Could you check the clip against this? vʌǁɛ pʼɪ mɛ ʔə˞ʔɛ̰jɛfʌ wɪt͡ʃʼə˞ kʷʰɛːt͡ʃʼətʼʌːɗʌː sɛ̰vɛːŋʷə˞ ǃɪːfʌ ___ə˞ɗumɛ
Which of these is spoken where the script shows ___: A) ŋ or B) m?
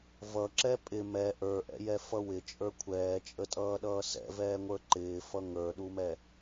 A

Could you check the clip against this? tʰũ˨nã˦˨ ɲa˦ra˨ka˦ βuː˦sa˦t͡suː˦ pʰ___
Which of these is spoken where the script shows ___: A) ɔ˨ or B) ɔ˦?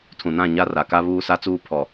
A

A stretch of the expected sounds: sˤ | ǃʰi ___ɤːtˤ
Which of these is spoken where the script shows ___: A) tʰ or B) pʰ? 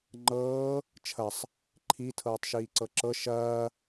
A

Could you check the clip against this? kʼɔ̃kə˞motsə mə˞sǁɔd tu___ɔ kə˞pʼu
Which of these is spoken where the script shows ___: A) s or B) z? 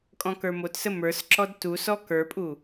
A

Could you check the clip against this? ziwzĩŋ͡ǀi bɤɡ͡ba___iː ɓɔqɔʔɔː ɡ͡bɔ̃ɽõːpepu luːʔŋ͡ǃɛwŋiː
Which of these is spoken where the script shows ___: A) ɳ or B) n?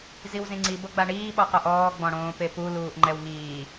A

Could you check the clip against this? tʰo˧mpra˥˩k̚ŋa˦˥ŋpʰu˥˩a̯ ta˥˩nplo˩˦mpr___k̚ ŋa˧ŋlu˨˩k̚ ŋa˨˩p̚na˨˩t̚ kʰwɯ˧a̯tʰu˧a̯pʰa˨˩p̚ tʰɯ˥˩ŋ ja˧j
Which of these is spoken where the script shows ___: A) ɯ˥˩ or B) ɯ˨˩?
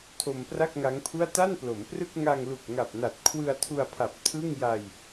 A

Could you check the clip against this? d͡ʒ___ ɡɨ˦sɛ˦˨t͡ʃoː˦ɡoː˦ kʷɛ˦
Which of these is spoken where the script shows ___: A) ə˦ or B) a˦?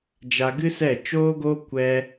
B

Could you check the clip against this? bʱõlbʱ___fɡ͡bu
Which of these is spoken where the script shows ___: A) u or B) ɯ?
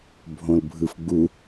B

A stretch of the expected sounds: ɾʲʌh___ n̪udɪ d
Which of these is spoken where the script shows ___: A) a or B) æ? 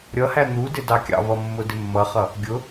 B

